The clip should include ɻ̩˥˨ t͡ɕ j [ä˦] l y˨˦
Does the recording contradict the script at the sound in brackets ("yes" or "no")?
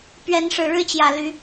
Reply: yes